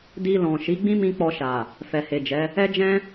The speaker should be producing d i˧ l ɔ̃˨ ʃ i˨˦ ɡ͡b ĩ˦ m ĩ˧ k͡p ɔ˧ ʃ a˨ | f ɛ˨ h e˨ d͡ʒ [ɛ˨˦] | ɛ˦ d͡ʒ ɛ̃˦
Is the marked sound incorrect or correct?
correct